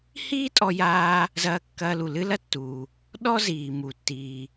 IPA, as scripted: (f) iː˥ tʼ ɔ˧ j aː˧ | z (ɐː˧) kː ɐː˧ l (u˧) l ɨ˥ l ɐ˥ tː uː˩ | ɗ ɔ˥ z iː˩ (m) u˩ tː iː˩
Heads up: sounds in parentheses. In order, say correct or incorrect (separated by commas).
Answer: incorrect, correct, incorrect, correct